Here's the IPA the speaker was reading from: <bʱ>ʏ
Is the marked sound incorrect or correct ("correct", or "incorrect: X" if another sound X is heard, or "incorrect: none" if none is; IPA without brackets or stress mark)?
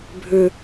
correct